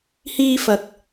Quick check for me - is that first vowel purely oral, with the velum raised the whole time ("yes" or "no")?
yes